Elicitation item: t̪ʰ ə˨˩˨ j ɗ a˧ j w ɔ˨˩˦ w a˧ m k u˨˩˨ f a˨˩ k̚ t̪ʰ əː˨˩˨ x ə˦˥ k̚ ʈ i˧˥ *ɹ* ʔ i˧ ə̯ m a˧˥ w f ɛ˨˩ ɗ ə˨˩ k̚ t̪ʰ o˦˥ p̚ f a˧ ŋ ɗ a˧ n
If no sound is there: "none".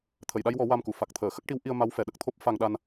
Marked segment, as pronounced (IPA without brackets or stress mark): w